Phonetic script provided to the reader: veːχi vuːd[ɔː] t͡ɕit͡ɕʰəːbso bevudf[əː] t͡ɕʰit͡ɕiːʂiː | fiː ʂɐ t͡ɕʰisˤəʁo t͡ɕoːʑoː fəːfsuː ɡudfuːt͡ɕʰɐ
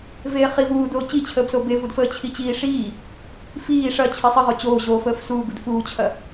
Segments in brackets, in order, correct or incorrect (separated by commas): incorrect, correct